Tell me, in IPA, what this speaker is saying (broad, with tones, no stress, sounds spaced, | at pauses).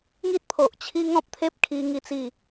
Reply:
ŋ i˦ t̚ pʰ o˨ ʔ t͡ɕʰ i˦ ŋ ɔ̃˦ p̚ t̪ʰ e˦ p̚ kʰ i˧ ŋ i˥˧ t͡s i˥˧